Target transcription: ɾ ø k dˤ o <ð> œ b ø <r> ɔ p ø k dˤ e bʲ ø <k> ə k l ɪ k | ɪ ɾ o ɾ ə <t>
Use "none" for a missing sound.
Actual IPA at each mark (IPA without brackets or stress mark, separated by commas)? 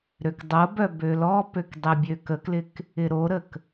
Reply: b, l, k, k